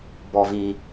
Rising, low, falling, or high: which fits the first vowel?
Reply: high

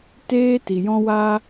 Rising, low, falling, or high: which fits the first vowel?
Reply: high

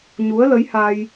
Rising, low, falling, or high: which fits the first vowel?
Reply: rising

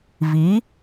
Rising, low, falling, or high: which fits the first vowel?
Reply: rising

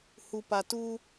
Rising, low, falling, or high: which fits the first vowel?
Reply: low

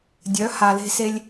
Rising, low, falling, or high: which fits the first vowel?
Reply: rising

